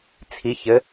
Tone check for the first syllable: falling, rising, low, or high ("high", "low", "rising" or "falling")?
rising